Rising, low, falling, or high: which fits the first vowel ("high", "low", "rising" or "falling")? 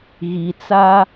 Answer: low